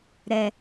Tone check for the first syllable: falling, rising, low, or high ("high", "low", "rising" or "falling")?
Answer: low